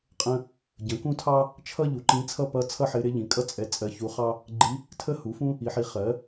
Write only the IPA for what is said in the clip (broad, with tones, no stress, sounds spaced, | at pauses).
qʼ ə̃˥ | ɟ ə̃˩˥ k ũ˥ tʰ ɑ˥ | t͡ʃʰ ʌ˥ ʎ u˩˥ ǃ ĩ˧˥ t͡sʰ ʌ˥ p ʌ˧˥ t͡sʰ ʌ˥ ħ ɪ˧˥ ɾ ɪ˧˥ ʎ ĩ˩˥ kʼ ʌ˥ t͡sʼ ɛ˧˥ t͡sʼ ɜ˧˥ ç u˧˥ χ ɑ˥ | ɡ͡ǃ i˧˥ | tʰ ə˥ h u˩˥ f ũ˥ | i˩˥ ħ i˩˥ χ ɜ˩˥